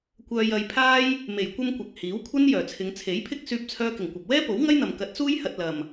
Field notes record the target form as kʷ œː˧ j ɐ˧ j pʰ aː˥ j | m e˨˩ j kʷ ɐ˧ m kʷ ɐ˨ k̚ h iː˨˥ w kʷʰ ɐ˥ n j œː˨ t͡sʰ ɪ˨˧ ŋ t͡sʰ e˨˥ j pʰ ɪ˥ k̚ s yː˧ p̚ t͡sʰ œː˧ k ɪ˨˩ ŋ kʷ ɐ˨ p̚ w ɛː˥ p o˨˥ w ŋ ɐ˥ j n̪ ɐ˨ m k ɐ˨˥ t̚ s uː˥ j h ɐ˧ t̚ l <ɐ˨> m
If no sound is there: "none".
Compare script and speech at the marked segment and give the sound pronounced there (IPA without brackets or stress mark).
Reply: ɐ˨